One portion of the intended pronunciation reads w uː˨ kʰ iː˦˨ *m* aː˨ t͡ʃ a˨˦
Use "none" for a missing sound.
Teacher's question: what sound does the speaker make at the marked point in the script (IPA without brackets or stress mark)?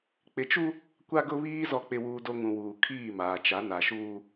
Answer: m